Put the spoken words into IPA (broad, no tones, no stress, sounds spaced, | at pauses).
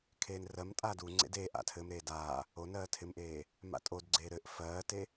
kʰ eː n r ɜ m tʼ aː d u ŋ͡ǀ ḛ d eː ʔ a̰ tʰ ɘ m ɾ eː d aː | o n ɜː tʰ ɪ m ʔ eː | m a̰ tʼ o d ɡ͡ǀ eː ɾ ɘ ʔ f ɜː t e